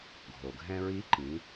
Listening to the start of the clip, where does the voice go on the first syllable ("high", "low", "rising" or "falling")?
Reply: low